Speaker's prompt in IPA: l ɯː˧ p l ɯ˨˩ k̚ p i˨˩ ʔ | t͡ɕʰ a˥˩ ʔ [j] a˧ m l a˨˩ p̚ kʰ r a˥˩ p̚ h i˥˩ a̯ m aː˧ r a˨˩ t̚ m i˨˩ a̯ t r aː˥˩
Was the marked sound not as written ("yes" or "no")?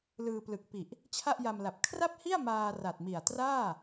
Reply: no